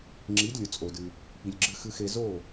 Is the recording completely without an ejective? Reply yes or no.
no